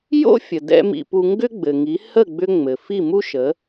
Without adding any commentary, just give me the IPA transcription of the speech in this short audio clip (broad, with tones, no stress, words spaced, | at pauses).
jo̰˥fʲə˩d̪ɛ̰˧ mḭ˧pu˧ ŋɡʏ˥ɡ͡bɘ˩ŋi˩˥ hə˥˩ɡ͡bʏ˧ ŋ͡mɘ˩ fi˥˩mu˥ ʃə˩˥